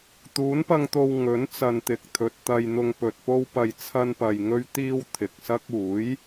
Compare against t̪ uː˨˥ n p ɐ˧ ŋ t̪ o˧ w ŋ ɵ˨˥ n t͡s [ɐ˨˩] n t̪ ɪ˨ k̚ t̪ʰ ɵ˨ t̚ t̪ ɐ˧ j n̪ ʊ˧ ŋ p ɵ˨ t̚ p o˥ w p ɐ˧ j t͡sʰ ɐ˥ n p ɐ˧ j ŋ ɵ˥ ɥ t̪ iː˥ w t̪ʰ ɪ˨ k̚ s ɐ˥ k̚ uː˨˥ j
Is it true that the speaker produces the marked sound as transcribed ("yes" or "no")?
no